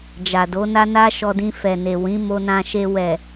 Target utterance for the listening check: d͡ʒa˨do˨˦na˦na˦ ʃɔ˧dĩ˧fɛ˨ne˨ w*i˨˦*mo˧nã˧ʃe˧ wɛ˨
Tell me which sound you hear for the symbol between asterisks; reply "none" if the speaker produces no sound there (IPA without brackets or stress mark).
ĩ˨˦